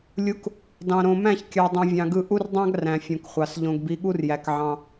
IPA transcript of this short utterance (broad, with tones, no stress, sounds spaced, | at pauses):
lʲ u˨˦ k | d ɑ̃˨ ɾ õ˨ m æ̃˦˨ ç kʲ ɑ˨ dˤ ũ˨ vʲ ɑ̃˨ ɡ ɯ˦˨ ʔ u˦ r dˤ ɑ̃˦ ɡ r æ̃˨ fʲ õ˨ k χʷ ɑ˨ s ʎ õ˨ ɡ b i˨˦ ɠ u˦ r j æ˨ k ʕ ɑ̃˦